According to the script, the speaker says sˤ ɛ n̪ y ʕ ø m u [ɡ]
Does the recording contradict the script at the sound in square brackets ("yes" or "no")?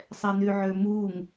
yes